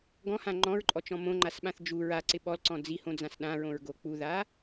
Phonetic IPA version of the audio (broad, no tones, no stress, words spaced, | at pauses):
ɡɔ̃hã ŋ͡ǃɔ̃ɹǃʼɔt͡ʃɔ̃ mõŋ͡ǃasɓãθ d͡ʒu ɹaǀɪ ɓɔlǀɔ̃ d͡zihõd͡zãs ɗãɹõɹɡo k͡puða